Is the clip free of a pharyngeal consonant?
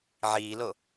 no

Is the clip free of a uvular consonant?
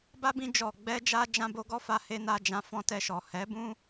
yes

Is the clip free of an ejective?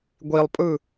no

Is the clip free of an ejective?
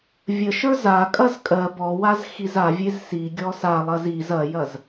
no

